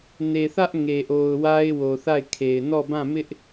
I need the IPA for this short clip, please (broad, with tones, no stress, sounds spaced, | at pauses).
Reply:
n e˨ θ ä˦ ʔ ŋ e˨ ʔ o˨ ʊ̯ w a˦ ɪ̯ w o˨ θ a˦˨ ɪ̯ kʰ e˨ ɪ̯ n ɔ˦˨ b ã˦˨ m ɪ˦ ʔ